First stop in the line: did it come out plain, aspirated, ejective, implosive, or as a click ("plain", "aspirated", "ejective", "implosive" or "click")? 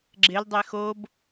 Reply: click